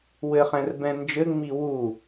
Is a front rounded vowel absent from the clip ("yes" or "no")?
yes